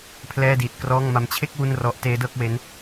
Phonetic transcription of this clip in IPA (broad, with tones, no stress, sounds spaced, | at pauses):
pʰ l ɛː˥˩ d iː˨˩ t̚ k r ɔː˥˩ ŋ m a˦˥ m t͡ɕʰ e˥˩ k̚ w u˥˩ n r ɔ˦˥ ʔ t eː˦˥ d ɤː˥˩ k̚ w e˦˥ n